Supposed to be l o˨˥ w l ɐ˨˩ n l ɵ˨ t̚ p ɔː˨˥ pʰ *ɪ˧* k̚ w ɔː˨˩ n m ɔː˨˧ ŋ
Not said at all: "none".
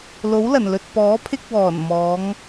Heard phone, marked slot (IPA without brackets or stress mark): ɪ˧